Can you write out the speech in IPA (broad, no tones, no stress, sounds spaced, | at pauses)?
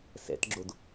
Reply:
s ɛ̰ t ɡ͡ǁ o d